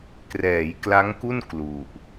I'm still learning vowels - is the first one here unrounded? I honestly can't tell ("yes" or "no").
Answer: yes